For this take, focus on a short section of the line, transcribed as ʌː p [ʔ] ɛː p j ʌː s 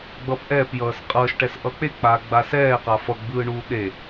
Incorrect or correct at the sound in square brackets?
correct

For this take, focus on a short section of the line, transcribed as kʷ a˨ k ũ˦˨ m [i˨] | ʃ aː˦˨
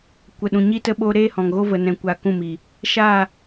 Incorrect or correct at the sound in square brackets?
correct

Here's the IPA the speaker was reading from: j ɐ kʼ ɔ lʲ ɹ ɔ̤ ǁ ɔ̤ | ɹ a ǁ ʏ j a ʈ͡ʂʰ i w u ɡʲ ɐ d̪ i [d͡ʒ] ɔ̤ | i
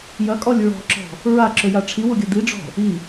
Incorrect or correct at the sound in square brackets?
incorrect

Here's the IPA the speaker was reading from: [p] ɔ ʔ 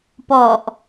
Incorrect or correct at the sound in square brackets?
correct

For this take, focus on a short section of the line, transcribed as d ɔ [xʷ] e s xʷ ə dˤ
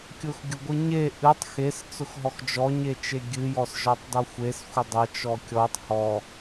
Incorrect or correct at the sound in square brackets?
correct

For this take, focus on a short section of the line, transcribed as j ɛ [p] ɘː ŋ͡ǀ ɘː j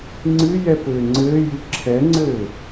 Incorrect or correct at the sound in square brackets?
correct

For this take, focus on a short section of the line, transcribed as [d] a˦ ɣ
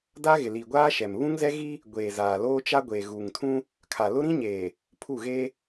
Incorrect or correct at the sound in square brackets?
correct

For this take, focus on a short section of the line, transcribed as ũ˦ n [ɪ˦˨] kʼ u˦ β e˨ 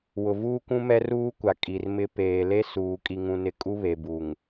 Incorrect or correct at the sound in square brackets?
correct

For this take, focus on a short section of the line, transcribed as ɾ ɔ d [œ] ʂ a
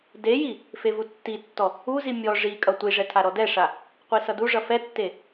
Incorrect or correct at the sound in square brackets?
incorrect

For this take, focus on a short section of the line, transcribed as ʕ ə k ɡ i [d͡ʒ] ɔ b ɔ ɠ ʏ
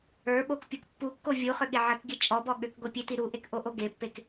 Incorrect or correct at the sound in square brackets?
incorrect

